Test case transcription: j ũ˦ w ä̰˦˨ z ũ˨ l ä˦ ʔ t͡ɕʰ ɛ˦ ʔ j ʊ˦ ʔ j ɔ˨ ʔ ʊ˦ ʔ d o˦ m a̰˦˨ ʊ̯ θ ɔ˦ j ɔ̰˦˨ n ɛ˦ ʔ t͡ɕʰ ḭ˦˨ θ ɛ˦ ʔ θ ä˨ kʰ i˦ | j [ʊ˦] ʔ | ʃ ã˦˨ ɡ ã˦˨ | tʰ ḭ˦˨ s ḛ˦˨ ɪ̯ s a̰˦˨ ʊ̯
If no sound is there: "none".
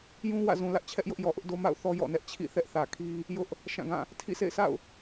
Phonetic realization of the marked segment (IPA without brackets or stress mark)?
ʊ˦